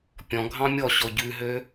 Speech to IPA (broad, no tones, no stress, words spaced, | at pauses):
pʲɔ̃ɡʱɑ̃ mʲɔɕɔ ɟʉɦø